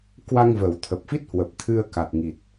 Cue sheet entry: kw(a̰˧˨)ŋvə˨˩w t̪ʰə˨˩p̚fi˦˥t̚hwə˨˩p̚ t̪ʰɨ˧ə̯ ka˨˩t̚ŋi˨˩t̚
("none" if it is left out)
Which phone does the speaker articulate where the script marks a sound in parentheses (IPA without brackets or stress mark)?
a˧